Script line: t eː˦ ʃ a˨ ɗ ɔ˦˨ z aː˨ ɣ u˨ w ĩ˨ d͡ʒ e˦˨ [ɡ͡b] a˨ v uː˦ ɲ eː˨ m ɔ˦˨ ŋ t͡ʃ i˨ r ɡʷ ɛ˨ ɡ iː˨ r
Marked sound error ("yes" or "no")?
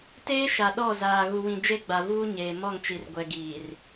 no